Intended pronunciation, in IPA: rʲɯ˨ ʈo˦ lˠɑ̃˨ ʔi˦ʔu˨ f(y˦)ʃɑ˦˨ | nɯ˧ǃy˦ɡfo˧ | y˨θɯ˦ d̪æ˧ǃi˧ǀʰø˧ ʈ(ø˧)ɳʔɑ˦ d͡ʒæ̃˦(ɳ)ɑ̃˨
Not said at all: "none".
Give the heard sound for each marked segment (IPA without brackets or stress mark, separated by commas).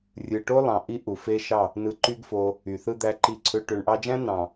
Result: e˦, ø˧, n